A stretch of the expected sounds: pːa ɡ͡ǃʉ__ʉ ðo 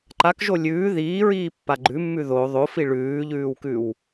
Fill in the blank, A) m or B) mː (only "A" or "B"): B